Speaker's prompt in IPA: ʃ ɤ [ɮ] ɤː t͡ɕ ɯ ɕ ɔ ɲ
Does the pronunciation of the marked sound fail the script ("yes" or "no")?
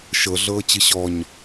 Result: no